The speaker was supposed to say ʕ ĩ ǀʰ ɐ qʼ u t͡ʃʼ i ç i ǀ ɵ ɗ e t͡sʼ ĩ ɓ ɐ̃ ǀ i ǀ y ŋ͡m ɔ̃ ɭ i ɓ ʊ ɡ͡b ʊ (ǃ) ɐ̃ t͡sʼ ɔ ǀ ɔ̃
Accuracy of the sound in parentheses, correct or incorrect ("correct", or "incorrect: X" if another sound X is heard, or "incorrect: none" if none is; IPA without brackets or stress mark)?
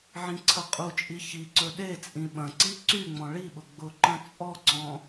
correct